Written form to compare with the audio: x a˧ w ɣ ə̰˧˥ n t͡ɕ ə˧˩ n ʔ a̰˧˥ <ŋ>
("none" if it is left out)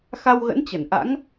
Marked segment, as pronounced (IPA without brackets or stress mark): ŋ